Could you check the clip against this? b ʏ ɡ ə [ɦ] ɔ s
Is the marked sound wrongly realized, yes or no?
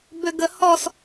yes